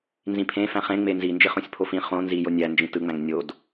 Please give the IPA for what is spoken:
n z ĩ pʰ ẽ f æ̃ χ ẽ ŋ͡m e n z i n d͡ʒ i χ õ sʲ pʰ o f ĩ χ õ n z i j o nʲ æ n d͡ʒ ĩ t ɯ ŋ͡m æ̃ ŋ nʲ o d

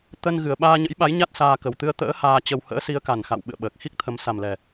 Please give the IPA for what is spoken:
t̪ ə˧ n ɣ ɨ˨˩ ə̯ ɓ aː˧ ɲ ə̰˧˥ j ɓ a˨˦ j ɲ a˦˥ t̚ s aː˧ k ə˨˩ w t̪ ɨ˧ ə̯ t̪ ə̰ː˧˥ h aː˧ t͡ɕ ə˧ w h ə̰ː˧˥ s i˨˦ ə̯ k a˨˩ n x a̰˧˨ w ɓ ɨ̰˧˨ ə̯ ɓ əː˨˩ k̚ x i˦˥ k̚ t̪ʰ ə˨˦ m s a˨˩ m l ɛ˨˩

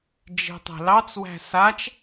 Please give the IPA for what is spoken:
d͡ʒ e̤ tˤ æ̤ l ɑ t͡s w æ̤ s a t͡ʃ

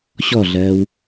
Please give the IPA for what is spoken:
ɕ ɔ ɮ ɜː w

